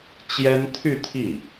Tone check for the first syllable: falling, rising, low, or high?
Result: high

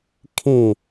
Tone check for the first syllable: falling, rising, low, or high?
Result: falling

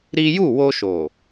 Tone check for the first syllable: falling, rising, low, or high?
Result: high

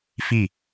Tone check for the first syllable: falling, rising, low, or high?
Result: falling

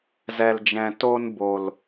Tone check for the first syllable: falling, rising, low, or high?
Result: low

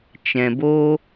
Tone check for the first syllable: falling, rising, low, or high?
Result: low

